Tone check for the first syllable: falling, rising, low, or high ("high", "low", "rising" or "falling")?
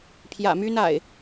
low